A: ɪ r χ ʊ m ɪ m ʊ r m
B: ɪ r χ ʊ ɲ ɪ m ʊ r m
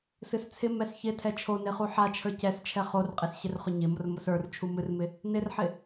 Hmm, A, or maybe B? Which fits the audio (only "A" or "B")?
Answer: B